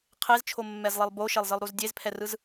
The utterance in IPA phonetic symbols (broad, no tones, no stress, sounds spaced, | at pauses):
qʰ e z t͡ʃʰ o mː ɛ z lˠ i lˠ b o ʃ e lˠ z ɯ lˠ ɾ u z dʲ e z pʰ ɛ r ɯ z